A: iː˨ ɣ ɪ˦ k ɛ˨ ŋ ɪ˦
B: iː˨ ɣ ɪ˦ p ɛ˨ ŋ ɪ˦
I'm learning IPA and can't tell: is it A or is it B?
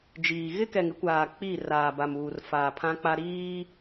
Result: A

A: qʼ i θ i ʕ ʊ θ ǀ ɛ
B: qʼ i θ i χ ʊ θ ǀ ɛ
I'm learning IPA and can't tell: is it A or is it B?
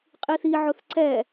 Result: A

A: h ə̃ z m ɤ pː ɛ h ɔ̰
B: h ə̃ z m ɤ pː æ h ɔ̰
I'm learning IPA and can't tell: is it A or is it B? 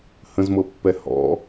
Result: A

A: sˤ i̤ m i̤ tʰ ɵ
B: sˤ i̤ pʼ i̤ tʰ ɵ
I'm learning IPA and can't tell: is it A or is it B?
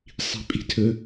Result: B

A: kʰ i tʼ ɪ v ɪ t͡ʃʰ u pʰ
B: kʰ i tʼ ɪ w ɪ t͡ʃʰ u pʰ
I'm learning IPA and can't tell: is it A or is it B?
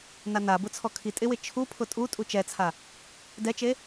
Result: B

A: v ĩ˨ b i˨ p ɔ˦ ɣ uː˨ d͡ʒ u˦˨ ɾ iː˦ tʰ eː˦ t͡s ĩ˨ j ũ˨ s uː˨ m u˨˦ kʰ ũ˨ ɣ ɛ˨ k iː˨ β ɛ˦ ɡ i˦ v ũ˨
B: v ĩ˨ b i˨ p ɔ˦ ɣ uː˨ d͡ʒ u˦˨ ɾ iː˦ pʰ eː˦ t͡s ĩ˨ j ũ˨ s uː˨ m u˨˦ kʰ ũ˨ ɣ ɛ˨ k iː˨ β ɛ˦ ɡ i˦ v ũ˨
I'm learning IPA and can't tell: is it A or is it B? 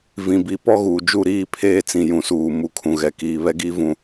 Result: B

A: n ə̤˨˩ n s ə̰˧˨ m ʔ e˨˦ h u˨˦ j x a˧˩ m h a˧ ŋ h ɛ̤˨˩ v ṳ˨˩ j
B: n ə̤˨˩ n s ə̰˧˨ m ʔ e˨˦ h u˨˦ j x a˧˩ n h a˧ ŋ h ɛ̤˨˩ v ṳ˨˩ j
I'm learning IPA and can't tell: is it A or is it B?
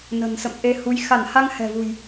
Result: B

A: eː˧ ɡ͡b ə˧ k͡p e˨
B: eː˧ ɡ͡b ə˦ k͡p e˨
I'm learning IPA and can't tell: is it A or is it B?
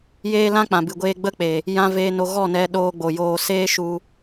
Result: B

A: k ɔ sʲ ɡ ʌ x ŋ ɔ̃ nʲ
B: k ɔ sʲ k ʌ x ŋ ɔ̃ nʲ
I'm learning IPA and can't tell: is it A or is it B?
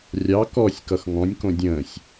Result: B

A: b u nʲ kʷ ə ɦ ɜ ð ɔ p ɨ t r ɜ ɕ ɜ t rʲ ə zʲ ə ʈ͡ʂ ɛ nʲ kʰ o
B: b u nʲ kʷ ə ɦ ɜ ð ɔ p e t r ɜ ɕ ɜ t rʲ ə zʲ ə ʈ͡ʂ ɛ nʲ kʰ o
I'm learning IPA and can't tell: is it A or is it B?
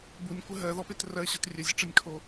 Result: B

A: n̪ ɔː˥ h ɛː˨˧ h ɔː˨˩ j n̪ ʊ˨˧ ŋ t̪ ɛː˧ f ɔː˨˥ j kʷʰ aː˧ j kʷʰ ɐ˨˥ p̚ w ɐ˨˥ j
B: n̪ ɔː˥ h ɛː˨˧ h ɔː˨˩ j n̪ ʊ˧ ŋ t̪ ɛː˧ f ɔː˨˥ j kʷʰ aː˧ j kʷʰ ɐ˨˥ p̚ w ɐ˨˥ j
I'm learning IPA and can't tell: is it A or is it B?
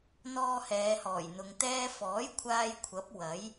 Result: A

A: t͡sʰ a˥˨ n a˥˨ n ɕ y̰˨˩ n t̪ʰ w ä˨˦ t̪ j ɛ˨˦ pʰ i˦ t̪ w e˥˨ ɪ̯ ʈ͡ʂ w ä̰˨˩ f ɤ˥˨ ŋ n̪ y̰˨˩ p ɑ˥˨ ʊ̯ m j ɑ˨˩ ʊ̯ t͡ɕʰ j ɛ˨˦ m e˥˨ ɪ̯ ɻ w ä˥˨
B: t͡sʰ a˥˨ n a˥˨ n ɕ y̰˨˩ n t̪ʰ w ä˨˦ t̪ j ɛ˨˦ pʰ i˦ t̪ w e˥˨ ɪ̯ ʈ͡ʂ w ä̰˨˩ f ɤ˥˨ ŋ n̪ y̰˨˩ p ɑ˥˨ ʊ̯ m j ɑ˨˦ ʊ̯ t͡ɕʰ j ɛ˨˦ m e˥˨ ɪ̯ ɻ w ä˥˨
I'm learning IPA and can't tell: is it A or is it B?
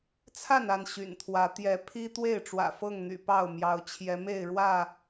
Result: B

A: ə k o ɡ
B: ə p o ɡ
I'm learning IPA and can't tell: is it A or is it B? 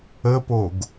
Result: B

